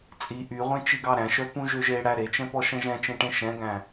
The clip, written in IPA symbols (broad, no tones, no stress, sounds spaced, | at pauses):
t͡sʼ i ʔ y ʁʷ ẽ t͡ʃ i ɡ ɑ ɾ æ̃ ʃ œ p ũ ʒ ø ʒ e ɽ æ ɾ e t͡ʃ ɛ̃ p ɔ ʃ ɛ̃ ʒ ɛ̃ t͡ʃ ẽ ʈ ẽ ʃ ɛ̃ ɡ æ̃